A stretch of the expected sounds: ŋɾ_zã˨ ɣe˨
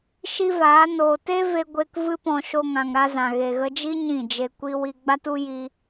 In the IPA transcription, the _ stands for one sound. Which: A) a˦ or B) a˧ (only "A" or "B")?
B